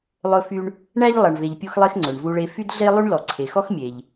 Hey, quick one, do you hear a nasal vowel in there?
no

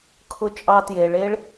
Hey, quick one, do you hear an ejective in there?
yes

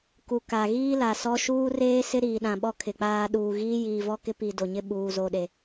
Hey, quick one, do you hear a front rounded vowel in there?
no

